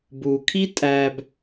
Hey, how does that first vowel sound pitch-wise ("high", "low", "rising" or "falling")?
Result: low